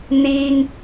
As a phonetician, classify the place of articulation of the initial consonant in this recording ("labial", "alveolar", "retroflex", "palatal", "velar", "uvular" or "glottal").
alveolar